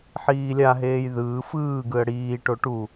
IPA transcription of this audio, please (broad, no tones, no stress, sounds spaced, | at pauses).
ħ iː lʲ a ɦ eː j ð ɯː f ɯː ɡ ɯ ə̯ ɽ iː ʈ o ʈ u